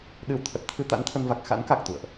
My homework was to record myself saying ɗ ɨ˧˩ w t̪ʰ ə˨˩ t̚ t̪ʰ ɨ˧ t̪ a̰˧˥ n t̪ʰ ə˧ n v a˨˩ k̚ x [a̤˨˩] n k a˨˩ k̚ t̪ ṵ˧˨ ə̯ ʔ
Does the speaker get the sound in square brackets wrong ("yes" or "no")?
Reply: yes